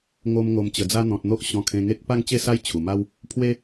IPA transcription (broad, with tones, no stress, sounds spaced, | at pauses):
ŋ o˧ m ŋ o˨˩ m t͡ɕ ə˨˩ d͡z a˧ n̪ ɔ̃˨ t̚ n̪ o˦ ʔ ɕ ɔ̃˧ kʰ ẽ˧ ŋ e˦ k̚ p a˥˧ ŋ t͡ɕ e˥˧ s a˦ j t͡ɕʰ u˨˩ m a˦ w | pʰ w e˦